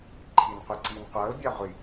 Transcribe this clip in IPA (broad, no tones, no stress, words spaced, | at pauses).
ǃʰinqʷiǀin qʷɤl bʲɑʁʷi